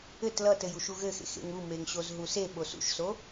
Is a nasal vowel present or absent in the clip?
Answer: absent